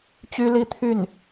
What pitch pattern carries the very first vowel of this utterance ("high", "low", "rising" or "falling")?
high